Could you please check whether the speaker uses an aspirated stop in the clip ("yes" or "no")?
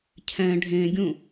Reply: yes